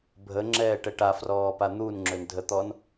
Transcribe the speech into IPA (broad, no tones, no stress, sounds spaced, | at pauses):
bʱ ə ŋ͡ǁ ɛː ʈ ɛ ʈ a f r ɔː p a n̪ u n ŋ͡ǁ ø n dʱ ə t̪ ɔː n